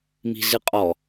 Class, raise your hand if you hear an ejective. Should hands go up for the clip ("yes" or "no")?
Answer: yes